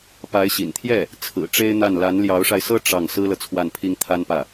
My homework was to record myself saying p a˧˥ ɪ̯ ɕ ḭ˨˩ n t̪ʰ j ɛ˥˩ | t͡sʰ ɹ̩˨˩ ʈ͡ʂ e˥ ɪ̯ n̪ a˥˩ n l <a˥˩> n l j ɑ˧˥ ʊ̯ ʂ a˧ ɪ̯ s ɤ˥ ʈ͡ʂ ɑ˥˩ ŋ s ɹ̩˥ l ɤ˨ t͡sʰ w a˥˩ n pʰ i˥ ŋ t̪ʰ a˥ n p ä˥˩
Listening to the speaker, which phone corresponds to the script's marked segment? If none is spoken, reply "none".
a˧˥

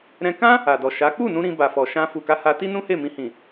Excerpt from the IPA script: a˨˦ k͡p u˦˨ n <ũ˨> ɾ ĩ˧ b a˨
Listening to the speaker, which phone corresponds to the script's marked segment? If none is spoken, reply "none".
ũ˧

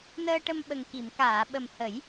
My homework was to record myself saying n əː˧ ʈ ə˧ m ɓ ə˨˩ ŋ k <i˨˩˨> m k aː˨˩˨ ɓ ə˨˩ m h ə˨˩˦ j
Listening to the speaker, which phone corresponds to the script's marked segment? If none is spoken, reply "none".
i˨˩˨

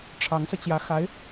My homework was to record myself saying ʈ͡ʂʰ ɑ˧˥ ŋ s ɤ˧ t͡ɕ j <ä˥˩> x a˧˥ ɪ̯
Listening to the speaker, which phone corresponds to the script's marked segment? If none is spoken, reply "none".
ä˧˥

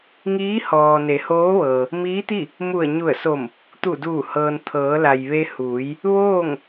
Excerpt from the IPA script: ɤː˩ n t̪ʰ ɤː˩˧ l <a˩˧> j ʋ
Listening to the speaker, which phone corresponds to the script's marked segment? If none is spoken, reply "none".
a˩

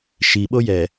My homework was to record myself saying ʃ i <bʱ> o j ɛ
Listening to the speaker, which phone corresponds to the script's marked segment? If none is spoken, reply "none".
ɓ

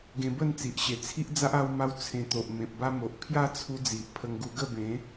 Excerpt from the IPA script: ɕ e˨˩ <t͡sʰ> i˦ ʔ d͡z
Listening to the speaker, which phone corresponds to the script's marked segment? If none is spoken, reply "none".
t͡sʰ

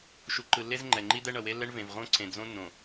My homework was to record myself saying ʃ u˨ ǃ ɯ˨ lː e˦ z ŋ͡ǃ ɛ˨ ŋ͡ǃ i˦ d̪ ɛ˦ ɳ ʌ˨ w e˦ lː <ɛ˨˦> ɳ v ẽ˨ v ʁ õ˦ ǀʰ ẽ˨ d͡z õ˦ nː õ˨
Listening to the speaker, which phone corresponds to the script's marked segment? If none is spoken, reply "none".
ɛ˦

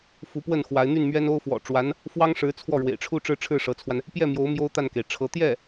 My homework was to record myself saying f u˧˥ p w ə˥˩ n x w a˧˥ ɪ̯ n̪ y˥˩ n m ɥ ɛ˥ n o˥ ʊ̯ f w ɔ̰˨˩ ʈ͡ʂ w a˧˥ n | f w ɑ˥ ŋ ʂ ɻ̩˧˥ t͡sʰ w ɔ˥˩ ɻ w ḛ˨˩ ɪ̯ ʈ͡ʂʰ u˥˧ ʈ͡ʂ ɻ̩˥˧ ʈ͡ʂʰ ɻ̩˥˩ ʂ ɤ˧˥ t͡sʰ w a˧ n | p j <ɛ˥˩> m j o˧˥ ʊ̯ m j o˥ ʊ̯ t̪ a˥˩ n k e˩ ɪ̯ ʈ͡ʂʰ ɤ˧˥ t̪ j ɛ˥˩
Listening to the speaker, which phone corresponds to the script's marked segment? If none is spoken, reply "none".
ɛ˥˩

